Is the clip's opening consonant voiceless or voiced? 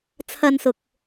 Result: voiceless